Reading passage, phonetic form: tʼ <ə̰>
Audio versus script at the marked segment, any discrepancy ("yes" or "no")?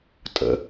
no